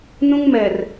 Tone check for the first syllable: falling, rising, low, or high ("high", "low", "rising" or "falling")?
high